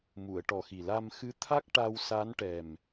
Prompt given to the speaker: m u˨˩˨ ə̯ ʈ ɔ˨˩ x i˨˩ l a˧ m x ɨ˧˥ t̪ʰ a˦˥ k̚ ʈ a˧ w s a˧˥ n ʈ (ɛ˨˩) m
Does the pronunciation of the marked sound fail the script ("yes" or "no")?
no